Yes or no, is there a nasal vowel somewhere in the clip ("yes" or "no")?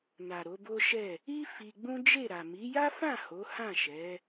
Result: yes